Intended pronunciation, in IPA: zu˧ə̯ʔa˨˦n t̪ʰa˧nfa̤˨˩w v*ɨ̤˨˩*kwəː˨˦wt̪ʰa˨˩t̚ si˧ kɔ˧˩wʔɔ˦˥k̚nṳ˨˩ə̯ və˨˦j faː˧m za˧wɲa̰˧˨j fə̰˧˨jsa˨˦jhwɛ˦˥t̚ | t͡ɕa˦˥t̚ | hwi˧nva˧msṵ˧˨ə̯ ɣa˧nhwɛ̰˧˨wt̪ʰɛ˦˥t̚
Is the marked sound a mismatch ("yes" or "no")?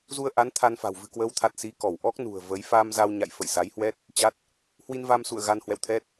no